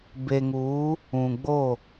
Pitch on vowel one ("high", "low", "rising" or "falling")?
low